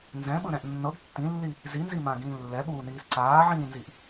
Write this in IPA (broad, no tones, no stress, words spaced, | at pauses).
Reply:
nzɛ̃ɓɯɾɛ̃ʔ nːɤɡ tːĩlːi | zinzimãɡĩː lːɛɓuːniːs ǀaːʕĩːnziʔ